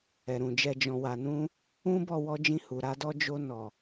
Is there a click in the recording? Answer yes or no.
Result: no